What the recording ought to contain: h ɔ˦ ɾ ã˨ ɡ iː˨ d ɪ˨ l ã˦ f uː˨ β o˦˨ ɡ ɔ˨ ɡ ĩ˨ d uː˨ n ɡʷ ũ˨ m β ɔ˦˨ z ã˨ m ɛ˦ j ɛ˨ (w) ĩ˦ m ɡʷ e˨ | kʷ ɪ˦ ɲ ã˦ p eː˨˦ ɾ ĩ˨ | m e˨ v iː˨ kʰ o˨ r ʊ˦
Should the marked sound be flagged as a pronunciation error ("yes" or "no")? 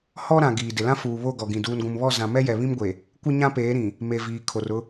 yes